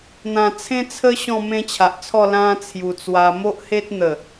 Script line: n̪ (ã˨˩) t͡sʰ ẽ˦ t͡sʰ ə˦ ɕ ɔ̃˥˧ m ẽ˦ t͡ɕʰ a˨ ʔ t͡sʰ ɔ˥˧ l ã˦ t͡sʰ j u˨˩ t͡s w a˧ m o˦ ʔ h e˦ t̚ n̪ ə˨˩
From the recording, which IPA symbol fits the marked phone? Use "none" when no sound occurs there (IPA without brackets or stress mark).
ã˨˩